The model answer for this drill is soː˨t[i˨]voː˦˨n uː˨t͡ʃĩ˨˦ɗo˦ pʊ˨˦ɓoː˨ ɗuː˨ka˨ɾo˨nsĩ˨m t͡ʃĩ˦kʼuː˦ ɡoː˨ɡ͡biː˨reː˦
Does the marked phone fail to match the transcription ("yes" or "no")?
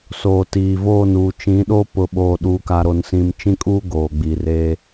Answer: yes